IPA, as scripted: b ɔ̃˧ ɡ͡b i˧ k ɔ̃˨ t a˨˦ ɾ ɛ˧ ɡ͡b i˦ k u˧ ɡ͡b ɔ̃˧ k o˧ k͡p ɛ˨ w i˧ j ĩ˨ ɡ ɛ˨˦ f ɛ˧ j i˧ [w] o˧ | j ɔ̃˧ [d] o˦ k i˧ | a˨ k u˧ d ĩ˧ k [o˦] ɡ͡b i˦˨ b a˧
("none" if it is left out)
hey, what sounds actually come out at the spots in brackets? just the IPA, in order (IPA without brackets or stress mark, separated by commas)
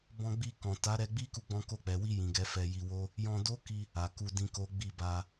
w, d, o˦